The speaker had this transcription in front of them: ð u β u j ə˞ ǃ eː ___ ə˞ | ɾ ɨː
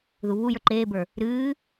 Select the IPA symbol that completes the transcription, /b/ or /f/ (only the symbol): b